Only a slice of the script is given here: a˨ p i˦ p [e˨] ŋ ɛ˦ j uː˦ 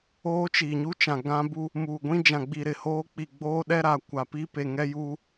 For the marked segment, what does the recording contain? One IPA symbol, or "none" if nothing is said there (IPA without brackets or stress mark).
e˨